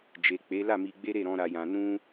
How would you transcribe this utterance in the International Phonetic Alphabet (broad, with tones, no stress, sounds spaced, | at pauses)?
d͡ʒ e˨ k͡p e˨˦ l a˦˨ m i˧ ɡ͡b e˦ ɾ e˦˨ ɾ ɔ̃˧ ɾ a˧ j ã˧ n ũ˦